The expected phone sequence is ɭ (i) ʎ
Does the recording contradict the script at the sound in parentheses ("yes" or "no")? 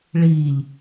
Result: yes